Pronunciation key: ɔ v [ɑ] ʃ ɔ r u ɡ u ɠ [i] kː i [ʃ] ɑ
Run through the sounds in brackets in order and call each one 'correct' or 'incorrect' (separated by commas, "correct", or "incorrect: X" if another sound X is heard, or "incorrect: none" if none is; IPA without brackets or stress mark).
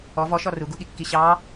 incorrect: ɔ, correct, incorrect: ɕ